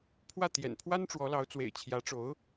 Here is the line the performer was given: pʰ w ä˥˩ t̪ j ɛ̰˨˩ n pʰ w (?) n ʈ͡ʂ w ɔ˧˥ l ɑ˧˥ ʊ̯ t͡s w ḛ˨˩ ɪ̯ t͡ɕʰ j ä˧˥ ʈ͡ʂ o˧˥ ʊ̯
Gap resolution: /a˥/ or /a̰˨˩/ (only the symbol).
a˥